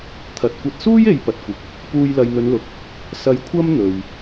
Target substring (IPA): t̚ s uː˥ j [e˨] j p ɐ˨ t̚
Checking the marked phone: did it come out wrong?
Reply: no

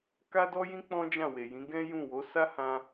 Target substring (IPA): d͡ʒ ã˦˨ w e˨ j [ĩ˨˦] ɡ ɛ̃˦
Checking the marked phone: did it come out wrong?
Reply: no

